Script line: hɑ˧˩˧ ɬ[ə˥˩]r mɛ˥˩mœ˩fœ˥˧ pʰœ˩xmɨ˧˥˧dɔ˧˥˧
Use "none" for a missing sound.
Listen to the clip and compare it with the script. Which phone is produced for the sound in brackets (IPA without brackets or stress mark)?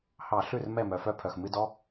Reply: ʉ˥˩